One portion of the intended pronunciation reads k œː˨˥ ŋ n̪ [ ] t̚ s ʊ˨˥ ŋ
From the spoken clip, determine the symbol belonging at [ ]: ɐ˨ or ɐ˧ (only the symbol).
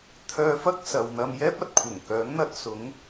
ɐ˧